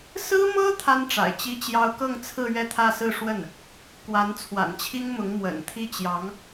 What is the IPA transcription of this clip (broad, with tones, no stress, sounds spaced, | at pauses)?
s ɹ̩˥ m ɤ˥ t̪ʰ a˥ n ʈ͡ʂ a̰˨˩ ɪ̯ t͡ɕ i˥ t͡ɕ j ɑ˥ ʊ̯ k ɤ˥˧ ŋ t͡sʰ ɹ̩˥˧ ɥ ɛ˥˧ t̪ʰ ä˥˧ s ɹ̩˥˧ ʂ w ə˥˩ n | k w a˧˥ n t͡sʰ w a̰˨˩ n t͡ɕʰ i˥ ŋ m ʊ˧˥ ŋ m w ə̰˨˩ n t̪ʰ i˥˩ t͡ɕ j ɑ˧˥ ŋ